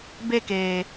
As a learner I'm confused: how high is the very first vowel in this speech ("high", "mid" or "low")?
mid